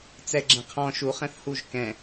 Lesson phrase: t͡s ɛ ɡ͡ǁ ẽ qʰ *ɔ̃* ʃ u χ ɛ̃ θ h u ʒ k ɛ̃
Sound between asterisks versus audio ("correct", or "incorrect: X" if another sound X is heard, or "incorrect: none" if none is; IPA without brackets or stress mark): correct